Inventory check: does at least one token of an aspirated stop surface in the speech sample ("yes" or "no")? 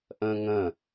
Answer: no